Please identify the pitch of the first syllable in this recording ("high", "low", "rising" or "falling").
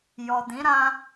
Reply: low